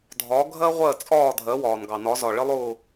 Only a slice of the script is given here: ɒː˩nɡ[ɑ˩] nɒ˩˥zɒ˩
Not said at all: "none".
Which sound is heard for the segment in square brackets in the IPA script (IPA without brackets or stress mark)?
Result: ɑ˩